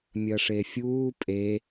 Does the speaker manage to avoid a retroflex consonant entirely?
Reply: no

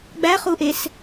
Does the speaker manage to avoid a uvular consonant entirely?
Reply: no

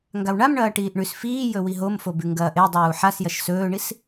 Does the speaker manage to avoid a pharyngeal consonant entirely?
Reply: no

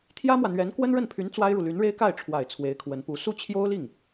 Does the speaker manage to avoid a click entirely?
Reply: yes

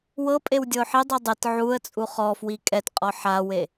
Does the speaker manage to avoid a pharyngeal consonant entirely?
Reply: no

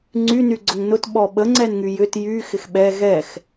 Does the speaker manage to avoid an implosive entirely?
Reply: no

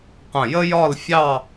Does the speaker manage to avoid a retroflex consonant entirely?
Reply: yes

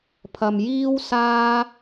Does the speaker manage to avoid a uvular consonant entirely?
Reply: yes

